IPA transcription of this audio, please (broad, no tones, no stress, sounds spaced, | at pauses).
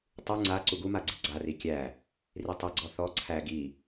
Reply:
tˤ u ŋ͡ǀ a ǀ u ɡ u m a ɡ͡ǀ i ɡ͡ǀ a r i kʲ æ | r i tˤ i ɡ͡ǀ ɔ θ ɔ ǀʰ æ ɡ i